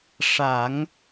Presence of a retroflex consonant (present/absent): present